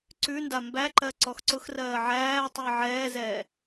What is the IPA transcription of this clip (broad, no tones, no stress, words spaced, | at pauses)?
ǀʉnda mbæǃɜ ǀɔxǀʊxrɜː ʕæːtˤuə̯ ʕɛːzɛː